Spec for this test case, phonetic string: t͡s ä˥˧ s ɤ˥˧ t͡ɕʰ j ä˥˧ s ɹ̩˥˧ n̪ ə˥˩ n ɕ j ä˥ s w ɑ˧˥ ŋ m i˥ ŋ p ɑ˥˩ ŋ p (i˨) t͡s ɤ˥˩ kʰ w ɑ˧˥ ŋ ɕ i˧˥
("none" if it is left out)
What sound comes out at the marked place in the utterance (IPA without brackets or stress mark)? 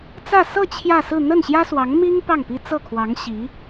i˥